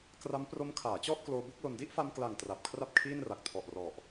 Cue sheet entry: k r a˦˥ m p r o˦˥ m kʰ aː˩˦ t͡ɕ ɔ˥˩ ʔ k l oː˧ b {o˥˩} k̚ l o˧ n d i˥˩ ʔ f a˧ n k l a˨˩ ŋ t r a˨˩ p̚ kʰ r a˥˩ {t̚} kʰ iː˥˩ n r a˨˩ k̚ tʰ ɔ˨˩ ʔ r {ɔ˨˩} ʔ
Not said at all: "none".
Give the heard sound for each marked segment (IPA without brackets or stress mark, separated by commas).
u˥˩, p̚, ɔ˨˩